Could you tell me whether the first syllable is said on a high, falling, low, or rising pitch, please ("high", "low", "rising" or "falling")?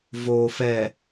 low